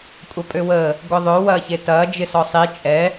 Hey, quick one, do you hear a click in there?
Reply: no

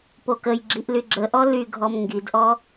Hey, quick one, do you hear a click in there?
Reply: yes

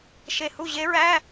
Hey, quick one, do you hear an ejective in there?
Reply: no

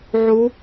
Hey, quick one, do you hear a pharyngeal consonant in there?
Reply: yes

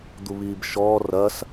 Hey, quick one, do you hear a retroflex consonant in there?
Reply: no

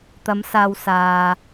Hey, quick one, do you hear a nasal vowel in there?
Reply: no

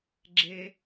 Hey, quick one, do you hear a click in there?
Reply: yes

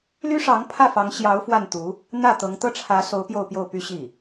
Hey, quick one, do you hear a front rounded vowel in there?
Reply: yes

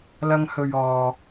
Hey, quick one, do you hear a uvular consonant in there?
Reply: no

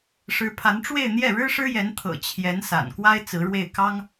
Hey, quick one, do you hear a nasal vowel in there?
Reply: no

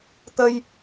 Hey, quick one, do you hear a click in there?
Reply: no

